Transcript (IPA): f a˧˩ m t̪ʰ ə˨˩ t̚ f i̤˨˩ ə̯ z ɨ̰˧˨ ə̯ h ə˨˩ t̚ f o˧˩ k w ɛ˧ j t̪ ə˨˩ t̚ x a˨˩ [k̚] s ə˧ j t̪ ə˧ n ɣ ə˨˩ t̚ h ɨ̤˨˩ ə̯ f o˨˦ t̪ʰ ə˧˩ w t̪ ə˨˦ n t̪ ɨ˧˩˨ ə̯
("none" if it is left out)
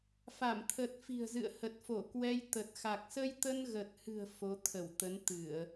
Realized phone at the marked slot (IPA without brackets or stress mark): k̚